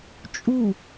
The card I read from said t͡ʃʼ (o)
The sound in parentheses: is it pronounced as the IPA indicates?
no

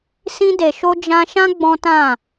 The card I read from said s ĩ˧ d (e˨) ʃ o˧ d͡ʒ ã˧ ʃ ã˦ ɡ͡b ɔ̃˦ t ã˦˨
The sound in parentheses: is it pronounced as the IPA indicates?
yes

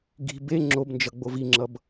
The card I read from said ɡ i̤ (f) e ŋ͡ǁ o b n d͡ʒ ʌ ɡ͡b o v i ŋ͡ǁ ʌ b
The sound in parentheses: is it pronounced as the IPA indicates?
no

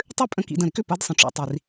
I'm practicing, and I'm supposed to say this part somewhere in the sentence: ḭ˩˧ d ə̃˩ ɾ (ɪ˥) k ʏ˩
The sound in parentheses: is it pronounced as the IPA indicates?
yes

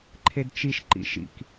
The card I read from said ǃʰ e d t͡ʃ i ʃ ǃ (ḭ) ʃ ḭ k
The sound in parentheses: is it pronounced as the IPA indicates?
yes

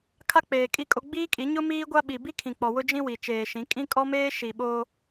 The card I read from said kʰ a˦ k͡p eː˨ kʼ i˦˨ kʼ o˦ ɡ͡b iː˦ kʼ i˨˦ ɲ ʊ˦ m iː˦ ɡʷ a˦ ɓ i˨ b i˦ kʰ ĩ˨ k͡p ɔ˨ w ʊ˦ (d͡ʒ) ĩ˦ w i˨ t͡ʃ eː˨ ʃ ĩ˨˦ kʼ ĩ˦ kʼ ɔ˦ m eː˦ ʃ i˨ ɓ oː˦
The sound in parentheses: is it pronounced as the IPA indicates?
yes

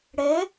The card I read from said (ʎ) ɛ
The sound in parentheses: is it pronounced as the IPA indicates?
no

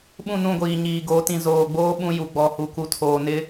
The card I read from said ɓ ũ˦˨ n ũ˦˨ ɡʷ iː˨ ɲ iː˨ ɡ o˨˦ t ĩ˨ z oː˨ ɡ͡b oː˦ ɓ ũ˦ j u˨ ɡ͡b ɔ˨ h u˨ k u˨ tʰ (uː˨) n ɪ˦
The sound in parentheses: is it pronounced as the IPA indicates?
no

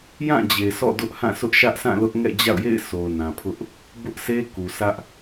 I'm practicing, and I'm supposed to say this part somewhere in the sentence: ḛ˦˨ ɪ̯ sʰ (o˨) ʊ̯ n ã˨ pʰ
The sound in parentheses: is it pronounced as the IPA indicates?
yes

